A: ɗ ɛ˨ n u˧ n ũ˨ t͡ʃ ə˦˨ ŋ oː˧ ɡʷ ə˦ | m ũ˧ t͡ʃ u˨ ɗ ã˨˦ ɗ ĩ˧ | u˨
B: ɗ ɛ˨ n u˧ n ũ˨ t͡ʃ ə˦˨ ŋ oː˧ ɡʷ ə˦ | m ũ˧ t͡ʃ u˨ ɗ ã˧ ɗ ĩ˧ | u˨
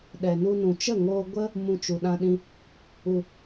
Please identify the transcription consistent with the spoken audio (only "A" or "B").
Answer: B